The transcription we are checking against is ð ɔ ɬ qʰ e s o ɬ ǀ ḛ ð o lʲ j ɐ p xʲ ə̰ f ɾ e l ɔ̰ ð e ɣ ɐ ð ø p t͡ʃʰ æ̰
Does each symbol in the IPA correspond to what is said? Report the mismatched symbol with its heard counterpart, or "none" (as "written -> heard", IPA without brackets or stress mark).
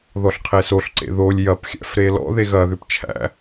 ə̰ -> æ̰